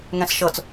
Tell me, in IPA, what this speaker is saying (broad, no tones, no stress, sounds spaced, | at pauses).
ŋ ɛ̃ s ʃ ɤ t͡s